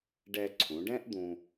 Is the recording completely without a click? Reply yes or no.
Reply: no